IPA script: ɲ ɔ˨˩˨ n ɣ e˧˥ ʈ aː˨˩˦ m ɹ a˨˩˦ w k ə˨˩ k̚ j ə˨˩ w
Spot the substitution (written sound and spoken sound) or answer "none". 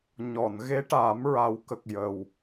none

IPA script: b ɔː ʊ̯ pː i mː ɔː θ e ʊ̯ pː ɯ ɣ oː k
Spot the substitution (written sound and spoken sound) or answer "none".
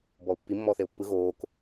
none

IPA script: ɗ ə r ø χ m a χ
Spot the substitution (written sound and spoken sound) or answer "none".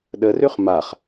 none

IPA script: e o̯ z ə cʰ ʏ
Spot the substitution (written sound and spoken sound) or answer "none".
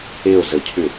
none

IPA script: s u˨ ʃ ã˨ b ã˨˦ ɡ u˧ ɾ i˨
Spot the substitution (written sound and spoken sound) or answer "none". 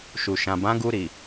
s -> ʃ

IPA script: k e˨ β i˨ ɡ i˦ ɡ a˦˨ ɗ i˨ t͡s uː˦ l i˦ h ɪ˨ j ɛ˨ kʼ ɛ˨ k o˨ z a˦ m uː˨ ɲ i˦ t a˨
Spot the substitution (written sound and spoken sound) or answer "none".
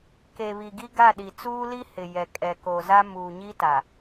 none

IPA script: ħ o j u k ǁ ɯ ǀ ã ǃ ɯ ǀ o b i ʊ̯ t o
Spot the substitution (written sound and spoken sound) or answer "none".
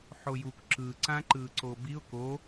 t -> k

